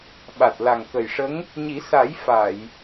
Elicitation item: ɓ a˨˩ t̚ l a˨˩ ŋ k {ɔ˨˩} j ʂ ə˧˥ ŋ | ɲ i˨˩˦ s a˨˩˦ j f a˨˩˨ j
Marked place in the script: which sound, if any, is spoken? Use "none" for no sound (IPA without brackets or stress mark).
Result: ə˨˩